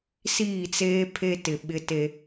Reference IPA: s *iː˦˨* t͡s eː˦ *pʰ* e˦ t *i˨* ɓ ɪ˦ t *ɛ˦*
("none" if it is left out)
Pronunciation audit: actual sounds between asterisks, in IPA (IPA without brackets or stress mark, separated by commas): iː˦˨, pʰ, ɪ˨, e˦